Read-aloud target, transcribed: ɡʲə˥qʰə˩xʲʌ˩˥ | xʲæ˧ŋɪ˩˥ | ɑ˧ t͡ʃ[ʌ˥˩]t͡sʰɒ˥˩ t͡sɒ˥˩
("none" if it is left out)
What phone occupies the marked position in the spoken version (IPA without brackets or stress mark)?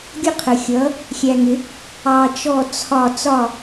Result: ɔ˥˩